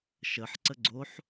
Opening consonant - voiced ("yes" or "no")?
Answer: no